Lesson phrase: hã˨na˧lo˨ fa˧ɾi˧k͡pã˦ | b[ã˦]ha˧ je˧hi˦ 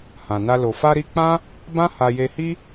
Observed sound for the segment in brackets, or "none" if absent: ã˦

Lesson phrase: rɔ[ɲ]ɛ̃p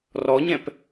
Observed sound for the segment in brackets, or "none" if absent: ɲ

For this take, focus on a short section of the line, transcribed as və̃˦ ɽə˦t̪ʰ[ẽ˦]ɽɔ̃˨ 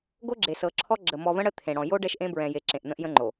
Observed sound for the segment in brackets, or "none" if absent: ẽ˨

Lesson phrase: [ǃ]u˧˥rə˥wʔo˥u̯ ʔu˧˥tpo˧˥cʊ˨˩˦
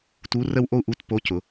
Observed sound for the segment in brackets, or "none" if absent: t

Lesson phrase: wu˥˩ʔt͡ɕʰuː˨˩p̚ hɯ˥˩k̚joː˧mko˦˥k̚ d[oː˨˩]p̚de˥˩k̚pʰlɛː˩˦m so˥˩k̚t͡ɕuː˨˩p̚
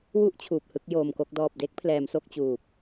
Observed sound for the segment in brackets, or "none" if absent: ɔː˨˩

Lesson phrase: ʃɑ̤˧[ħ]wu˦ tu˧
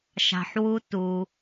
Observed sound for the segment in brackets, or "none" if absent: ħ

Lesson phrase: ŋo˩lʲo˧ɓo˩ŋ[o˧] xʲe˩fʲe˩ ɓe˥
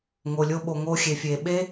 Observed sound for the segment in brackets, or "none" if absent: o˧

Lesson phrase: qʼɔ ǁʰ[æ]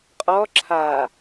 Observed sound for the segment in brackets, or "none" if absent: a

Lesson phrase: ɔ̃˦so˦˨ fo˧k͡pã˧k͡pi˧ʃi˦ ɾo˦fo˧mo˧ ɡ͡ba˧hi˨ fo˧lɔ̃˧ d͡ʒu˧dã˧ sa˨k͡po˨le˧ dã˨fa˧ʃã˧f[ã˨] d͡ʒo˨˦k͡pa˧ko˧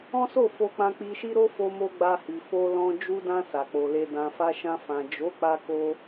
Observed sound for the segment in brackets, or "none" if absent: ã˨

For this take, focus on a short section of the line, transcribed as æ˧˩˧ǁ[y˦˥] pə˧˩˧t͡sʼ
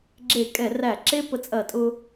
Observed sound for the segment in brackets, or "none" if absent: e˦˥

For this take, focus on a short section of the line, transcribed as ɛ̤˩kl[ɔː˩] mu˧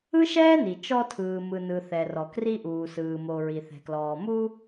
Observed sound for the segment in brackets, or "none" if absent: ɔː˩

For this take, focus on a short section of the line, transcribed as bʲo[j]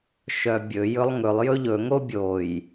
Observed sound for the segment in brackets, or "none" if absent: j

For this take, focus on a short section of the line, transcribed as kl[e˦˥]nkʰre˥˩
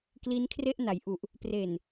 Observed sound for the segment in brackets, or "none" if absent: i˦˥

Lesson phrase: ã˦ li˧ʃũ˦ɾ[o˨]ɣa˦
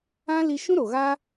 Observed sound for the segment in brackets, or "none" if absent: o˨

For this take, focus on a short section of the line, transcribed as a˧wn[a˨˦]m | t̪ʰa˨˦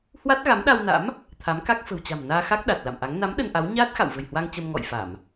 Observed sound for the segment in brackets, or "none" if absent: a̰˧˥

